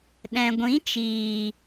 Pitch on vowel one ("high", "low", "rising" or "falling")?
low